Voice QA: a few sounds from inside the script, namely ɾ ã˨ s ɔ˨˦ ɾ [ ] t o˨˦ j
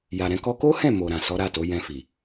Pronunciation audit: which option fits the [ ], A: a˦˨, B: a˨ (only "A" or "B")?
A